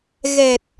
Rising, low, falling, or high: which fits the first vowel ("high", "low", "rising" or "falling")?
low